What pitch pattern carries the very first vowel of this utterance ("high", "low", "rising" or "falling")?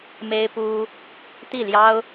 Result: high